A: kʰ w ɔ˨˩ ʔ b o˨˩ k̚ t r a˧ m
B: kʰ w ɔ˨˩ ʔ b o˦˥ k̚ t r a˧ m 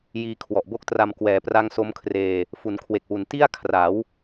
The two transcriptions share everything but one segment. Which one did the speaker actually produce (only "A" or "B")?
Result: B